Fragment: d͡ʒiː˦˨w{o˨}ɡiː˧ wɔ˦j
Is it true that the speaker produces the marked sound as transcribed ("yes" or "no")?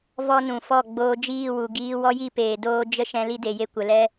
no